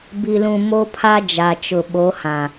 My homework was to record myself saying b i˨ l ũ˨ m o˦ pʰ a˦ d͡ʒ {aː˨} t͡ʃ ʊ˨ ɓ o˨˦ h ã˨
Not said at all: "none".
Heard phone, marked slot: a˨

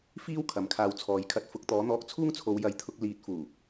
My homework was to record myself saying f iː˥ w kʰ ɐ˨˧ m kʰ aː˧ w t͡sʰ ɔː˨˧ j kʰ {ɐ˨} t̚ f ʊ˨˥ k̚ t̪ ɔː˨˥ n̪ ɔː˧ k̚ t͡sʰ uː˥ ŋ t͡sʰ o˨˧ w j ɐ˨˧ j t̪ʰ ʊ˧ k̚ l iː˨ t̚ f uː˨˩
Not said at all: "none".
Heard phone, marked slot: ɐ˧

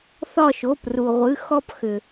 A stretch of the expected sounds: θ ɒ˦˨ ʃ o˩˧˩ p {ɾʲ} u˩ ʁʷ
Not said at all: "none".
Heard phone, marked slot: r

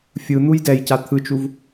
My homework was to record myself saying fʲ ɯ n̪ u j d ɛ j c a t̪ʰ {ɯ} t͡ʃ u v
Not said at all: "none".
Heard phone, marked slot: ɯ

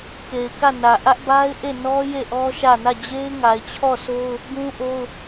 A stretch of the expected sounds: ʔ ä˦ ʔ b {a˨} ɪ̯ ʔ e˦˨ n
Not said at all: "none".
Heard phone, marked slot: a˦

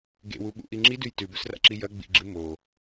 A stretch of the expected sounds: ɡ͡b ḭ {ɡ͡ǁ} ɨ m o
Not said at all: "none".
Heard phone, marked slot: ɡ͡ǁ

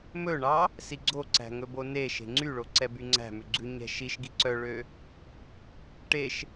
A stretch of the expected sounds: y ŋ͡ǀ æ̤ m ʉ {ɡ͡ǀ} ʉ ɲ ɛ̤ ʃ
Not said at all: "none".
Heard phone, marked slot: ɡ͡ǀ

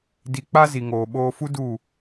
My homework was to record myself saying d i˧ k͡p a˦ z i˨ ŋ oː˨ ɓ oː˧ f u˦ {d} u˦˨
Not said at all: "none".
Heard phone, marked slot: d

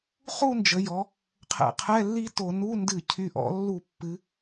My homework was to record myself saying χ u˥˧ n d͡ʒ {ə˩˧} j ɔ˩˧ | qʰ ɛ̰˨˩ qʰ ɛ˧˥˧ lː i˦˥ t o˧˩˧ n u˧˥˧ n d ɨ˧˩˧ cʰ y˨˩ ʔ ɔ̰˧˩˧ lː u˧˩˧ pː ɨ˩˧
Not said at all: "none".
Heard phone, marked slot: ə˩˧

